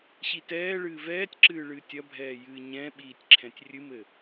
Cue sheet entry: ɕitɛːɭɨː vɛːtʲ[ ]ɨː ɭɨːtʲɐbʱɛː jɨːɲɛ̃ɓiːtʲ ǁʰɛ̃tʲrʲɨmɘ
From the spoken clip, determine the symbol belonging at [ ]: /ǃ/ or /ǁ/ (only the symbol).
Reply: ǁ